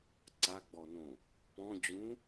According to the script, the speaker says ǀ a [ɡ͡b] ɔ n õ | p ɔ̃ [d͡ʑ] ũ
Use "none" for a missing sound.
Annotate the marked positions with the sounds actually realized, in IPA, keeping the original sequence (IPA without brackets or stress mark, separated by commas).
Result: ɡ͡b, d͡ʑ